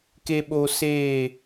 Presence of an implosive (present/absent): present